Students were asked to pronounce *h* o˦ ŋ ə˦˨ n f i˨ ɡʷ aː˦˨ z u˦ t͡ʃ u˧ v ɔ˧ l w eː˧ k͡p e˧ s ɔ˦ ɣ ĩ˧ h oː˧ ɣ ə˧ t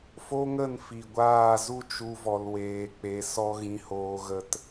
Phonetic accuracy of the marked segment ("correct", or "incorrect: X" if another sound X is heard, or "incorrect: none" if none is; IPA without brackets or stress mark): incorrect: f